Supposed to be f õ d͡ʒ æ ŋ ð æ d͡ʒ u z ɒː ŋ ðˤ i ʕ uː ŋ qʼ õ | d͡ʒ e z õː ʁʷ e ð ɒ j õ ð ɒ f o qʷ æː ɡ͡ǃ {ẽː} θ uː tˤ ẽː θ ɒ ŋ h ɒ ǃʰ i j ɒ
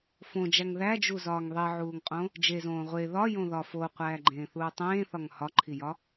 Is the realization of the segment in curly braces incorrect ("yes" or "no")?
no